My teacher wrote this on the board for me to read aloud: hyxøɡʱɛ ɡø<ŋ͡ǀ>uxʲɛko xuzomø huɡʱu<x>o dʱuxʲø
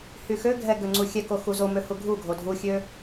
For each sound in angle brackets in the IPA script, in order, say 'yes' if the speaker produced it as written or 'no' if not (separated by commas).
yes, no